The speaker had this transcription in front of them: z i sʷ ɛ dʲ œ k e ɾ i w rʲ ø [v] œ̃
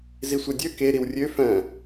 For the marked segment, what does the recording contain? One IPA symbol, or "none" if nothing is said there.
f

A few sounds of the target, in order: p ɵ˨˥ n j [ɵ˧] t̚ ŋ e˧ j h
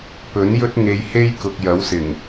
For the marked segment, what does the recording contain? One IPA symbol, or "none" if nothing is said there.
ɵ˥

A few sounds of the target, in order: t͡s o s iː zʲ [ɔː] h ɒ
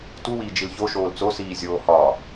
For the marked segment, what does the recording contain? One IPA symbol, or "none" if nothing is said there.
oː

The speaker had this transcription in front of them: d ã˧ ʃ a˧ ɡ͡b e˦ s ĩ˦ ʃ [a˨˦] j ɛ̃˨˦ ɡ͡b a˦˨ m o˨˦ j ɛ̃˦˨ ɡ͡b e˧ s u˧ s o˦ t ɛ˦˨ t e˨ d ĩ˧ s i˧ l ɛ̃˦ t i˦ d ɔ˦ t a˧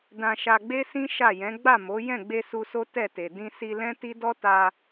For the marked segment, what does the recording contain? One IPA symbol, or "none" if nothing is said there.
a˦˨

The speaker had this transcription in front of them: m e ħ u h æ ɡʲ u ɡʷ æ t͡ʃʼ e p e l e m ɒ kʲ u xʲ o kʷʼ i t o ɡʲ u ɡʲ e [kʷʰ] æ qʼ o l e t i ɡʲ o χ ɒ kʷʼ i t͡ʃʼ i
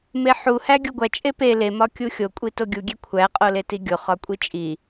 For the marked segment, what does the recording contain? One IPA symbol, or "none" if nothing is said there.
kʷʰ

